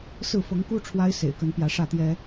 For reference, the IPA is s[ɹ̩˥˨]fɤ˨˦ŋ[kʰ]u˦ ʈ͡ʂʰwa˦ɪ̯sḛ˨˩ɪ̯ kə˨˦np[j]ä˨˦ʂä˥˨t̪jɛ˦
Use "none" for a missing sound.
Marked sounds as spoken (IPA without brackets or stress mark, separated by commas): ɹ̩˥˨, k, j